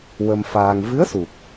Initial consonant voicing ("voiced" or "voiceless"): voiced